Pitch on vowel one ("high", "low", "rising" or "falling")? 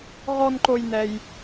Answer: high